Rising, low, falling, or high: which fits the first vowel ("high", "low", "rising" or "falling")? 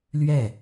falling